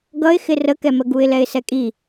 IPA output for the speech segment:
ɡ ʌ ɪ̯ x ɪ r ə k ɛ m ə ɡ u ɪ̯ l ɛ ɪ̯ s ɛ kʼ i

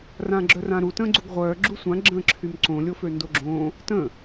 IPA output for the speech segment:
r ã ɡ͡ǁ œ r ã ɾ u t ə̃ː ɡ͡ǀ u ɡ ʁʷ œː ɡ͡ǁ u sʷ ã ɡ͡ǁ ə̃ː ǁʰ y m ǀ õ lʲ o f ø n d o ɡ͡ǁ õ | t ə̃

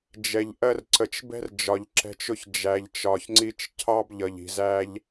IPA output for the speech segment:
d͡ʒ ɛ˨ ʎ ʔ ɜ˧ r ǀ ə˨ t͡ʃ b ɛ̤˦ r d͡ʒ ɒ˨ ʎ ǁ ɛ̤˧ t͡ʃ ʊ˧ ç d͡ʒ æ˨ ʎ t͡ʃ ɒ˨ ç ŋ͡ǀ i˧ t͡ʃ cʰ ɑ˦ b ʎ ʌ˨ ʎ i̤˨ z æ˦ ʎ

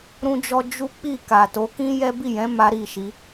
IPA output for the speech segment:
ɾ ũ˦ d͡ʒ ɔ˦ d͡ʒ u˦ k͡p i˦˨ k a˨ t o˨˦ k ĩ˦ j ɛ˦ b i˦˨ j ɛ̃˨˦ m a˦ ɾ i˦˨ ʃ i˨˦

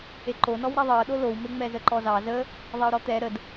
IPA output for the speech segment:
e ǃ o n ɔ w ɾ ɛ ðˤ ɤ ɗ o l o w m e ŋ͡m ɛ z ə ǃ ɔ z ɑ z ə | ðˤ ɛ o̯ ɾ ɔ t̪ ɛ ɾ ə d

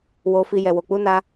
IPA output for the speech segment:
w o˧ f i˧ j ɛ˨ w o˨ k͡p u˨˦ n a˧

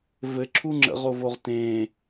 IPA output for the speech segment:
v ɘ ǁʰ u ŋ͡ǁ ə̰ ʁ o v o ʁ t ẽ

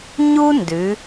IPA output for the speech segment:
ɲ u˥ n d ʉ˩˧

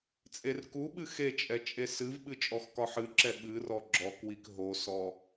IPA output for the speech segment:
t͡sʼ e r k u ɓ ɨ x e t͡ʃʼ ɛ t͡ʃʼ e s ɨ v ɓ ɨ t͡ʃʼ ɔ x k ɒ ħ ɨ ǁ ɛ ɓ ɨ r ɔ ɡ͡ǁ ɔ k w i k ɦ o s ɔ

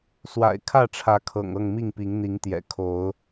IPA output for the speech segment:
s w a̰˨˩ ɪ̯ kʰ ä˥˨ ʈ͡ʂʰ ä˨˦ kʰ ɤ̰˨˩ ŋ ɤ˥˨ ŋ m i˥˨ ŋ p i˨˦ ŋ n̪ i˨˦ ŋ t̪ j ɛ̰˨˩ kʰ o˨˦ ʊ̯

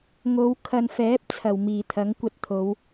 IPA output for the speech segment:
ŋ o˨˧ w kʰ ɐ˨ n f ɛː˨˥ p̚ t͡sʰ ɐ˨˩ w m iː˨˩ t̪ʰ ɐ˨˥ ŋ kʷ ɐ˧ t̚ t̪ʰ o˨˧ w

